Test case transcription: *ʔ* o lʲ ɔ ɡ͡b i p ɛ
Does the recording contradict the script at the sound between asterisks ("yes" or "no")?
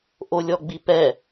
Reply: no